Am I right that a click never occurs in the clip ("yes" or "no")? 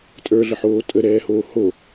yes